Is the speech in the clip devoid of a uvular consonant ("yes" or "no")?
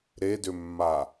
yes